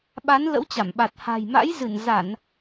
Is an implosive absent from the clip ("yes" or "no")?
no